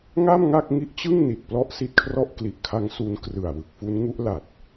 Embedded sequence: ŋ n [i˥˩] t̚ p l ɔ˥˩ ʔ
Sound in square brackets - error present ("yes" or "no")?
yes